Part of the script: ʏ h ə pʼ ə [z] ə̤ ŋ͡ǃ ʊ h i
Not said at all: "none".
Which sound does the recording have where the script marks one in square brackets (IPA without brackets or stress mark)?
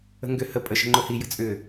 ʃ